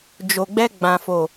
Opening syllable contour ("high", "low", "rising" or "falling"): low